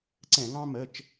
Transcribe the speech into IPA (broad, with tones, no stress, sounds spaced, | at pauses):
ǀ ɛ̃˧˩˧ ŋ ɑ̃˦ m ə˩˧˩ t͡ʃ